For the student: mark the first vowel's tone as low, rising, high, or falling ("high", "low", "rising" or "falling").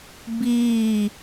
falling